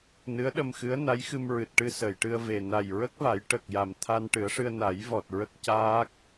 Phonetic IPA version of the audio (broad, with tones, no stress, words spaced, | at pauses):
nɨ˧˥ə̯ɗə˧mxɨ˧˥ə̯ na˧˥jxɨ˧mɹɨ˨˩t̚ʈɨ˧ sə˨˩˨jʈɨ˧ə̯ve˨˩ na˨˩jɹə˦˥k̚va˨˩˦j ʈə˨˩k̚ja˨˩m t̪ʰa˧nʈɨ˨˩˦ə̯ʂɨ˧ə̯ na˨˩˦jvɔ˨˩t̚ ɹə˦˥k̚caː˦˥k̚